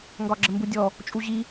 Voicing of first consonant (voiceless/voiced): voiced